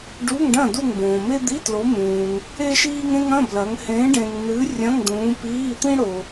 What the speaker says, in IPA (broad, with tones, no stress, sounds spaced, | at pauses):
ɖ u˧˥˧ ŋ ɖ ɐ̃˥˨ d u˥˨ ŋ b õː˨ m e˥ d̪ i˧˥˧ t l o˨˦ m ũː˨ ŋ | e˥ ʃ iː˥ ŋ ẽ˥ ŋ ɐ̃˧˥˧ b l ɐ˨˦ ŋ h ẽ˨˦ ɖ ẽ˨ ŋ n̪ ɨ˨˦ rʲ ɐ̃˧˥˧ ŋ d̪ ũː˨˦ p iː˧˥˧ t̪ ĩ˥ ɽ o˨